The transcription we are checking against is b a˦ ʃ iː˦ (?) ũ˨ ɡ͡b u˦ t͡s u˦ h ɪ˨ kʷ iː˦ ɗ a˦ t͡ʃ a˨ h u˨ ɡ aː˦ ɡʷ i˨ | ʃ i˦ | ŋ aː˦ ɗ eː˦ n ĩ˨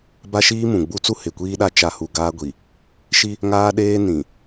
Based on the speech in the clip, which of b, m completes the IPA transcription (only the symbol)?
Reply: m